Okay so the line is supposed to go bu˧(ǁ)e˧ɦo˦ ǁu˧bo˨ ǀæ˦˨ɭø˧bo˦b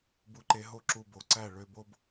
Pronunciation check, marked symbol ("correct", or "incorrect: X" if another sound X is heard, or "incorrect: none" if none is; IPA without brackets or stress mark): incorrect: ǃ